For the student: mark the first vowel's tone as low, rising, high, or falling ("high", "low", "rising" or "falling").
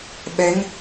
rising